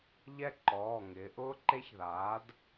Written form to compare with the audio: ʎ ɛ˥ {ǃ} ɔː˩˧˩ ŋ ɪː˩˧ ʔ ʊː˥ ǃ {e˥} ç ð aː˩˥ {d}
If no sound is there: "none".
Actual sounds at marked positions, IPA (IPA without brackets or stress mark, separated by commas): ǃ, e˥, d